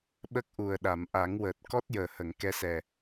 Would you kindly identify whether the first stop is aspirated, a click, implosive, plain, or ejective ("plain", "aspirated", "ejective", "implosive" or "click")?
implosive